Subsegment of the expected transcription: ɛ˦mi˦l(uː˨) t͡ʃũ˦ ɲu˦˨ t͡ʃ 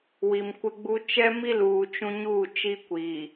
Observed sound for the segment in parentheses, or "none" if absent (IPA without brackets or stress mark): uː˨